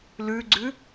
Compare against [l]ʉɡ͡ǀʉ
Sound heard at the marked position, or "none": l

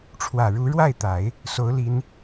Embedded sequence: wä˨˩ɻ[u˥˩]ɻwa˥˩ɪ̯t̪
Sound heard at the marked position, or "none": u˧˥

